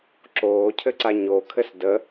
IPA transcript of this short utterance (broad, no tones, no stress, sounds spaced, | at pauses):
ǁ oː cʰ ɘ ǀ a ɲ o kʰ ɘ s d ə